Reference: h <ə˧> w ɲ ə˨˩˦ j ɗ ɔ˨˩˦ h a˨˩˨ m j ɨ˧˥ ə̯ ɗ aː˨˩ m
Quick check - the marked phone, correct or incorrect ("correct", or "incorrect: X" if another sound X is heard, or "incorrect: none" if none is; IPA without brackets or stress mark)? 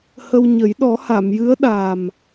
correct